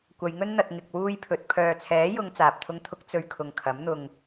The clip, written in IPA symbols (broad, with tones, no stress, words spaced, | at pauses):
kʷɐ˨˧jŋɵ˥n n̪ɐ˧t̚ ŋɪ˧k̚wuː˥jpʰɵ˨˥t̚ pʰœː˨t͡sʰɛː˨˥jʊ˨˧ŋ t͡saː˨p̚t̪ʰʊ˥ŋt̪ʰʊ˥k̚ t͡sɵ˧ɥ kʰʊ˧ŋ kʰɐ˨˥mn̪ʊ˧ŋ